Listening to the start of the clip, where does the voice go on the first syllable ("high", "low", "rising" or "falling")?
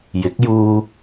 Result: rising